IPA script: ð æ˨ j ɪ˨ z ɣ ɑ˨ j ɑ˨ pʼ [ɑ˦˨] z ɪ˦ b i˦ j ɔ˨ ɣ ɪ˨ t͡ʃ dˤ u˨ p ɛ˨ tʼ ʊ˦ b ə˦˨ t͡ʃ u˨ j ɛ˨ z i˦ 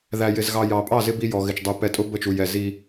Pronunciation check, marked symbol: correct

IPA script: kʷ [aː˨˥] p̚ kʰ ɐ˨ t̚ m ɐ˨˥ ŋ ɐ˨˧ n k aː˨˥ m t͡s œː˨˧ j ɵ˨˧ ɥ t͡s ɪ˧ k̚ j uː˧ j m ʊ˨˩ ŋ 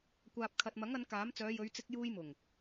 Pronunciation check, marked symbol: incorrect: aː˨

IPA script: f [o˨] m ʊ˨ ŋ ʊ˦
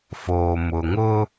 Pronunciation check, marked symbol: incorrect: oː˨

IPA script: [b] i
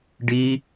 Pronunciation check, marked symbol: incorrect: ɖ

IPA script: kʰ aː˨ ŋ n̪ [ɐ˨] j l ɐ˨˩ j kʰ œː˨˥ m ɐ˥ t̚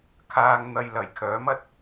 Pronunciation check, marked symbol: correct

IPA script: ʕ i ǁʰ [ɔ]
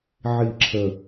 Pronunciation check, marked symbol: incorrect: ə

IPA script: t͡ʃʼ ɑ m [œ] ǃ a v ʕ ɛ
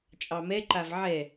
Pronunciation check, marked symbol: incorrect: ɛ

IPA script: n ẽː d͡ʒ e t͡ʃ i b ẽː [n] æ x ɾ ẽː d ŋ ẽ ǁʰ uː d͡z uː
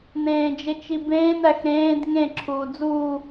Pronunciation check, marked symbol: correct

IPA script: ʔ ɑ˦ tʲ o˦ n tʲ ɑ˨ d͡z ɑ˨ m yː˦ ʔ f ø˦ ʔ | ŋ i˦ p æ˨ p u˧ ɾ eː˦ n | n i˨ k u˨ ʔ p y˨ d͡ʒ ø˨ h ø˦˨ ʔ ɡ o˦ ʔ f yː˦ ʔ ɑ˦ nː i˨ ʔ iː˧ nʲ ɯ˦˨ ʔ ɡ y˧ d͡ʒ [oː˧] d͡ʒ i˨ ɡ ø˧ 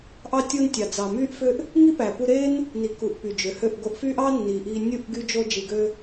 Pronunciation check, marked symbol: incorrect: o˧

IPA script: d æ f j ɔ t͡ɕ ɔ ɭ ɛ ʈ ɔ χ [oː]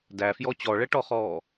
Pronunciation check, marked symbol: incorrect: ɔː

